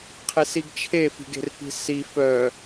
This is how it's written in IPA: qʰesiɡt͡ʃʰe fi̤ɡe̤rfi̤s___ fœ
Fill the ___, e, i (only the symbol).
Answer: i